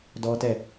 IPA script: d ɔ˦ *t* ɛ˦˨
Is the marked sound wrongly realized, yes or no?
no